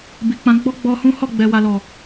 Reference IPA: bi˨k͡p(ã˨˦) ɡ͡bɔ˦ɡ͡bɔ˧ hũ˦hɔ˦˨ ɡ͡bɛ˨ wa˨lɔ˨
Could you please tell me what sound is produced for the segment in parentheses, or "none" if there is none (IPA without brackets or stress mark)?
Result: ã˨˦